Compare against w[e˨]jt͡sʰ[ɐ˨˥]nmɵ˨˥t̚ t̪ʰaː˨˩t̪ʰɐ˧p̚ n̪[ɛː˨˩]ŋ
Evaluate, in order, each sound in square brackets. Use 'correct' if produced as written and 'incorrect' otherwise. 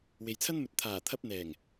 correct, incorrect: ɐ˥, correct

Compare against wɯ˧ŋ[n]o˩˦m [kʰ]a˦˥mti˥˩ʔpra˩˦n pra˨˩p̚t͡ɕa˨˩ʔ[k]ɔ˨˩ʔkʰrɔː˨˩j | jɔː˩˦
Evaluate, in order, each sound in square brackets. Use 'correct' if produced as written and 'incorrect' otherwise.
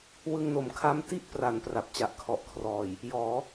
correct, correct, incorrect: kʰ

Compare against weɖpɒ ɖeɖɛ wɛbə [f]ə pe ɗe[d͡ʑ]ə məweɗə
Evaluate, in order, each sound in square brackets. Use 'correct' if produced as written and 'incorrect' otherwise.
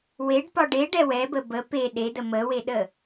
incorrect: b, incorrect: d

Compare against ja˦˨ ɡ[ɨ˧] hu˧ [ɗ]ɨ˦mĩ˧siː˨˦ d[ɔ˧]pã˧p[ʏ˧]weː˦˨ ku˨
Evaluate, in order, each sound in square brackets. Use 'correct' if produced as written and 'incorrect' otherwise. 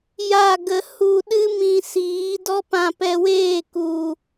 incorrect: ə˧, correct, incorrect: ɔ˦, incorrect: ɛ˧

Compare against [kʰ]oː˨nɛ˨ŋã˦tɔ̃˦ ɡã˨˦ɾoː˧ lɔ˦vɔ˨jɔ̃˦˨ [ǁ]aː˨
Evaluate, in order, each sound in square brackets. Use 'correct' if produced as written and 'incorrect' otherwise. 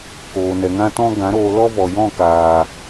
incorrect: k, incorrect: k

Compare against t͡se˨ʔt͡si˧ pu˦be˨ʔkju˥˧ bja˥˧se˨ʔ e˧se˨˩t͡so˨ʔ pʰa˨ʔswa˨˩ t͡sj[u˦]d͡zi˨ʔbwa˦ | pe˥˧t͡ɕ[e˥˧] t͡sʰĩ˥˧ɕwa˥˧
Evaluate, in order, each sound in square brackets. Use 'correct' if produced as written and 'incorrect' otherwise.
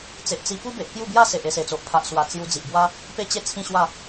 incorrect: u˧, correct

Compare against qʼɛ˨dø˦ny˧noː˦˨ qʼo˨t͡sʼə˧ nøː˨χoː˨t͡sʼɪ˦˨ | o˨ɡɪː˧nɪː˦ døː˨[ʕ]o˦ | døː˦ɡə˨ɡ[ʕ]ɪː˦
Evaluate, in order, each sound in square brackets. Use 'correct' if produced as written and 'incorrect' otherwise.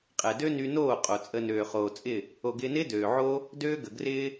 correct, incorrect: r

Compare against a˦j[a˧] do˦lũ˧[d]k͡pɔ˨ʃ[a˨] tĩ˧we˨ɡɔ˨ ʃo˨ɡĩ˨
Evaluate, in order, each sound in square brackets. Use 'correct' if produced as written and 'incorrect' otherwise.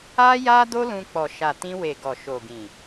incorrect: a˦, incorrect: none, correct

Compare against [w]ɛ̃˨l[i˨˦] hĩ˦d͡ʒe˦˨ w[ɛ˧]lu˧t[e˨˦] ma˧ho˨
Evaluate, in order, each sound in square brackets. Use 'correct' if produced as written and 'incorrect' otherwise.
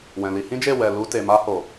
correct, incorrect: i˧, incorrect: ɛ˨, incorrect: e˨

